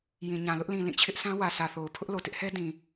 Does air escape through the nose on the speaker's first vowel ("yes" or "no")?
yes